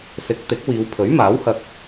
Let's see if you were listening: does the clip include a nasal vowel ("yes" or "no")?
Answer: no